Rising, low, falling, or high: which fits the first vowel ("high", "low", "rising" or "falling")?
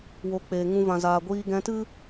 rising